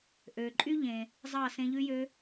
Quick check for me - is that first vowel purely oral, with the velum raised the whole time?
yes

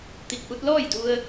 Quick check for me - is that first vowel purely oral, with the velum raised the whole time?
yes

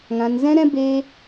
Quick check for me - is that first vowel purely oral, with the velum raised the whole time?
no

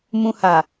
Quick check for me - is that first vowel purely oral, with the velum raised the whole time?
no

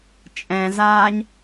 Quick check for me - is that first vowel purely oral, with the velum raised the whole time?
no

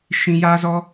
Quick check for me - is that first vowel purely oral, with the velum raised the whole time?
no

